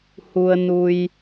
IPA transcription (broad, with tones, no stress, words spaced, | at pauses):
hu˧ə̯nu˧j